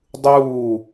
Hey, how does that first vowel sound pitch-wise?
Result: falling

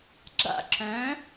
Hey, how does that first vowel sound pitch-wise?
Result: falling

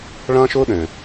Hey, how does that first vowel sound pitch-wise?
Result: high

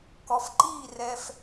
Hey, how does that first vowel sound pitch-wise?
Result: low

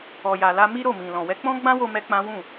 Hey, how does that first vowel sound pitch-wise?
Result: low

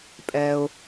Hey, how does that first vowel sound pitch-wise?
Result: low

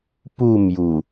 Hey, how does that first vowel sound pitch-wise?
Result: falling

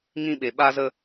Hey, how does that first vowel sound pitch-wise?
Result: high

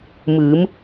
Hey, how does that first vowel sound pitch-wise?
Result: rising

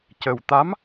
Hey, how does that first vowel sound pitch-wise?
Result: low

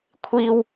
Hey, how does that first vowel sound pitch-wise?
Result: high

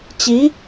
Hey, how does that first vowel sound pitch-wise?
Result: rising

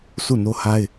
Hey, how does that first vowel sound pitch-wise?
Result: falling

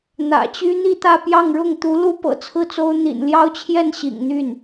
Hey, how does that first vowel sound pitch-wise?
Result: low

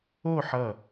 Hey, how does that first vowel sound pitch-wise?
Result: falling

